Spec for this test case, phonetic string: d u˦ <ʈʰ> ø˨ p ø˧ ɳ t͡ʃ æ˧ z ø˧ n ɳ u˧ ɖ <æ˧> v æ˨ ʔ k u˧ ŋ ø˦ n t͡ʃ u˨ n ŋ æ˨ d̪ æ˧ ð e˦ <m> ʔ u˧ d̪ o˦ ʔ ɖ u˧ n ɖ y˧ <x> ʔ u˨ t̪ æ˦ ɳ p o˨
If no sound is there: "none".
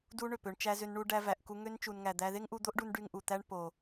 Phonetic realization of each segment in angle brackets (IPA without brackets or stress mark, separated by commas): ɳ, æ˧, ŋ, ŋ